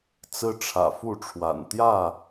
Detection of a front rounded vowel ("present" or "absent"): absent